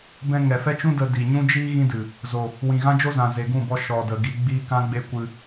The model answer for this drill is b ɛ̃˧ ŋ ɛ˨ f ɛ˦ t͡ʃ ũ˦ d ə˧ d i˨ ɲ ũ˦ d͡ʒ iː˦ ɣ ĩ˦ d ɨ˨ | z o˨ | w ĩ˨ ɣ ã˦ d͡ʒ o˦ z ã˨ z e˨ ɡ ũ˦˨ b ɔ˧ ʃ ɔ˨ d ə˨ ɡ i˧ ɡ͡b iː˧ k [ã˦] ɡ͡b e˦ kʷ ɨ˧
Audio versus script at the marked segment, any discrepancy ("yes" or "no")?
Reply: no